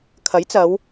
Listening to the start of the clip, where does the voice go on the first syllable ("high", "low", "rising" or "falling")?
rising